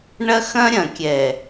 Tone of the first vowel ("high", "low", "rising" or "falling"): high